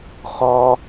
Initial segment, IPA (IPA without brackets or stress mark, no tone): χ